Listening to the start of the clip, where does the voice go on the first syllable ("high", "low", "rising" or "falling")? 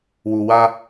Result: low